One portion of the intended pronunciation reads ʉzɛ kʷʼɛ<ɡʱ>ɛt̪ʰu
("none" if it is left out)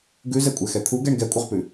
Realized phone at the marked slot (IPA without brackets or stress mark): x